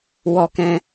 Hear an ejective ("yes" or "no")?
no